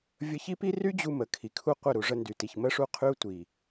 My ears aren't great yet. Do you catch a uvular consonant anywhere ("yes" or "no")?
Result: yes